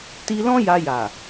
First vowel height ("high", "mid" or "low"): high